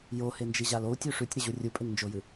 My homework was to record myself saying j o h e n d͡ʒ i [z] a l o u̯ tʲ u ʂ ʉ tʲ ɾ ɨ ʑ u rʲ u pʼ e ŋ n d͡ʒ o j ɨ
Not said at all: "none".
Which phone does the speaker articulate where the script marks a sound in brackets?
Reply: ʑ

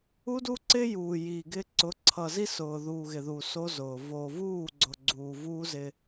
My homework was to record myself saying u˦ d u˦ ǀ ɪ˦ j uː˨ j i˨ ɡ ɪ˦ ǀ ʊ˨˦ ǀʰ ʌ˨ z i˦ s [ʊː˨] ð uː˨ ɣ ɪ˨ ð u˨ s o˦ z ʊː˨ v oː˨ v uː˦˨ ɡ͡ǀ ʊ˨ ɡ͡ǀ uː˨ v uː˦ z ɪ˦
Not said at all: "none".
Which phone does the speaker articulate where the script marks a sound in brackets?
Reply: ʊː˨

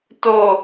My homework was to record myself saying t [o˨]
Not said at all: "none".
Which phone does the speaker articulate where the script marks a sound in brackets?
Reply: o˨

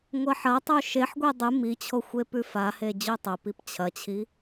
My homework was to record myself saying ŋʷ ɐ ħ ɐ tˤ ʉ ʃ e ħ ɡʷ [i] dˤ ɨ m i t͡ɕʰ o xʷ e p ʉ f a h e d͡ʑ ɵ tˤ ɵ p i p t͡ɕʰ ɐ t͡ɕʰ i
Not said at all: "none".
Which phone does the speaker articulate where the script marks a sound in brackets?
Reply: i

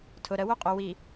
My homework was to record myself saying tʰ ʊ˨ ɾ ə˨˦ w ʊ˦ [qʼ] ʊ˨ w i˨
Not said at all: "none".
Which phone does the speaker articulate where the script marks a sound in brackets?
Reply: qʼ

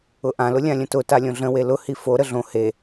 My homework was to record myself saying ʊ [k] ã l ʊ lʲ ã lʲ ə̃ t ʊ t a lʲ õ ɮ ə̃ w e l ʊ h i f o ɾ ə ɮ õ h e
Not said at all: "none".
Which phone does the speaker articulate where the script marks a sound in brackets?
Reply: ʔ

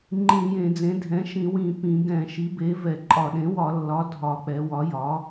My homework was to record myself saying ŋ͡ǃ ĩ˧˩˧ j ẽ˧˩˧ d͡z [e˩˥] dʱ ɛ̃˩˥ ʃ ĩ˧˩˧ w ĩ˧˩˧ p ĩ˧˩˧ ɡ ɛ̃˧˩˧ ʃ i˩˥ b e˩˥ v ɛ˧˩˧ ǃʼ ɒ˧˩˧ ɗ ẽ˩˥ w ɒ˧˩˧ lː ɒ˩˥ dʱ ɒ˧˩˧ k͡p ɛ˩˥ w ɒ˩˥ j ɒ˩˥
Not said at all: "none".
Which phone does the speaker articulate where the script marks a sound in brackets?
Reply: ẽ˩˥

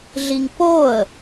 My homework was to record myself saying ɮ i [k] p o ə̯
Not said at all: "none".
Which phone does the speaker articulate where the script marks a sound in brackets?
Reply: ŋ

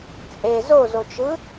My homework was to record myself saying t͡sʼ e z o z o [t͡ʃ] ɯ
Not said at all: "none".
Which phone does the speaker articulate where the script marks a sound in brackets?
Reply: t͡ʃ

